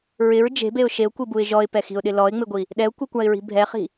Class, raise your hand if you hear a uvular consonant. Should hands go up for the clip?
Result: yes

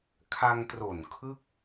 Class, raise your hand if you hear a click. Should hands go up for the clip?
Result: no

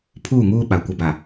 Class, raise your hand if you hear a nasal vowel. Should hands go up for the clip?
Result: no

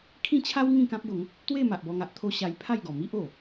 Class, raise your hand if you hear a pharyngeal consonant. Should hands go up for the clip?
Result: no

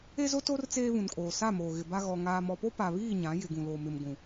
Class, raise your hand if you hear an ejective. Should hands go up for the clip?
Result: yes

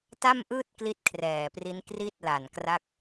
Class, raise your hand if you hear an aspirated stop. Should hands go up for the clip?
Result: yes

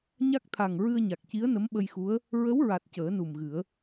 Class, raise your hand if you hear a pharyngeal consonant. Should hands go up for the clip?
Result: no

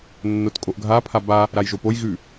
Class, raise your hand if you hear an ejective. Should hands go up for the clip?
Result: yes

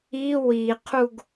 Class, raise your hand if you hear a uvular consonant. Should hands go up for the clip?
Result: yes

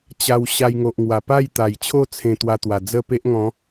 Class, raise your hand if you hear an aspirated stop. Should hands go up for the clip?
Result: yes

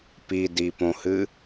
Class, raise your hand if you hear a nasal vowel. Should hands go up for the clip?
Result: yes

